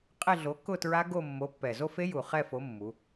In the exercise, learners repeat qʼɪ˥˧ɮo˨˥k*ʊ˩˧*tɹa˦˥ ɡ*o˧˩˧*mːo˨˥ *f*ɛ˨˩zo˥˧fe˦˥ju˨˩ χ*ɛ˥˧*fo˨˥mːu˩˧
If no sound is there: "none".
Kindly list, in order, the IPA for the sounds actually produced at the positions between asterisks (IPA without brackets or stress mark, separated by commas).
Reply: ʊ˥˧, o˥˧, pː, ɛ˥˧